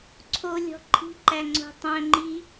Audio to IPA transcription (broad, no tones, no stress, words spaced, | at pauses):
ǀʰolʲɔ̤ ǃʰi̤ǃæŋ͡ǀo̤ tˤœ̃ŋ͡ǃi